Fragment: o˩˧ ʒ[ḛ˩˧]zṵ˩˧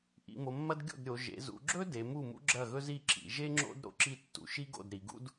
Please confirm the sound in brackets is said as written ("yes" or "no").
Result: yes